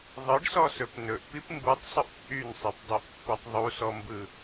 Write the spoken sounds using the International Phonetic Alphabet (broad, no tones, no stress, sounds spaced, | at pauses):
ðˤ ɯ ɖ s ɔ s ɵ p n ɵ ʔ p i p m b u tˤ sˤ ɵ ʔ t͡sʼ y n sˤ i p dˤ y ʔ pː e tˤ ðˤ u s ɔ m b ɯ